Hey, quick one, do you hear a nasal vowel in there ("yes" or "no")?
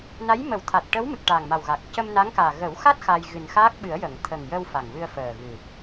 no